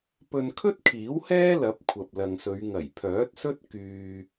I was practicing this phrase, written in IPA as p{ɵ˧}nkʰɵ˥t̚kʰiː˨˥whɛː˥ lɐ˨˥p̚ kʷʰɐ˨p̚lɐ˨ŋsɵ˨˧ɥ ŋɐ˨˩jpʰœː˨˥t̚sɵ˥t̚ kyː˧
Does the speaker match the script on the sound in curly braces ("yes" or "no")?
yes